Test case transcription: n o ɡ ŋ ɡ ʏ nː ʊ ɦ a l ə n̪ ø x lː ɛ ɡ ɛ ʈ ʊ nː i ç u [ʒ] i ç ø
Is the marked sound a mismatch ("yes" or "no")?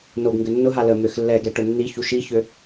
yes